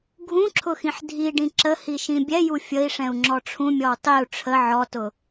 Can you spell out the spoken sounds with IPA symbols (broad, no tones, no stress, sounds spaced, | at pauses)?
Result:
ɡʱ ũ ǁʰ ʊ x ĩ ħ dʱ i ɖ ĩ ǁ ə h i ʃ ĩ bʲ ɛ j u fʲ ə i̯ ʂ ɛ̃ u̯ ŋ͡ǁ ɔ ʈ͡ʂʰ ũ mʲ ɔ w tˤ i u̯ ʈ͡ʂʰ ə ʕ ɔ t ʊ